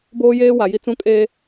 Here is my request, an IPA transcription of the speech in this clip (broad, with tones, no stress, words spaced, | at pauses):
boː˦jeː˦wa˨ji˦ t͡sũ˦ kʼeː˦